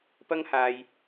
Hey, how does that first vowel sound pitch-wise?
high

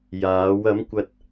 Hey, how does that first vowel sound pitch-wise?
rising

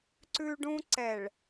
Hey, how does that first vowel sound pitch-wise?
high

